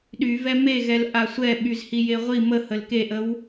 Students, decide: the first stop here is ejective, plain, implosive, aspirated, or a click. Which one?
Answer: implosive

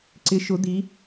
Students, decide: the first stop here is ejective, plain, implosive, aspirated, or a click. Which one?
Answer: click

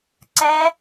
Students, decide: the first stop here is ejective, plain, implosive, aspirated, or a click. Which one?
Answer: click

